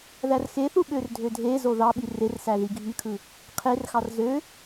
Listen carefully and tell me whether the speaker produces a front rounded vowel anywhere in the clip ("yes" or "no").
yes